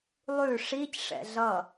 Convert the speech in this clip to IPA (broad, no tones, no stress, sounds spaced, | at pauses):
lˠ ʉ ʂ i c ʂ ɛ̰ ɮ ʌ